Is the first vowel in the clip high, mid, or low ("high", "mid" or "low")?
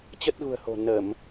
mid